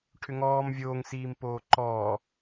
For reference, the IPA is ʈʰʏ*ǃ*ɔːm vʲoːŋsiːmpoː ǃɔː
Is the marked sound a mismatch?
yes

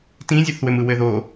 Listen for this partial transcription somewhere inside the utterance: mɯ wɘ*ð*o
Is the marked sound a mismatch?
no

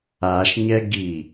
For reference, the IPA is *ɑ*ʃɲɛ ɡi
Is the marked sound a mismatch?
yes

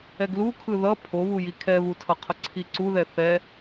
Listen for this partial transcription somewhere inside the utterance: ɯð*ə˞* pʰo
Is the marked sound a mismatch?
yes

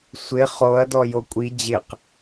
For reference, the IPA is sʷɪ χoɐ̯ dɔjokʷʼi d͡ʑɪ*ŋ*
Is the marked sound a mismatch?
yes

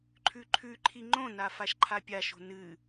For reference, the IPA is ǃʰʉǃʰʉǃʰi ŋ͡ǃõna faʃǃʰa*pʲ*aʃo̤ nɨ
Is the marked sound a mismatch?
no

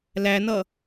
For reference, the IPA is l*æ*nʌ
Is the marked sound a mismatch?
no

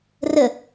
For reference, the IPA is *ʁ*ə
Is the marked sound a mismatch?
yes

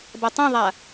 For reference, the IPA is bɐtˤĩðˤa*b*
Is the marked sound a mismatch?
yes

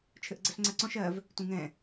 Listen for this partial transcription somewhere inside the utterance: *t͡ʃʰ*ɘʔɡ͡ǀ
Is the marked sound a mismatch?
no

